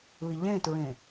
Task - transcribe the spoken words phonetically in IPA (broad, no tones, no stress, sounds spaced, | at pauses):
ɯ i̯ ʎ ẽ t ɹ ẽ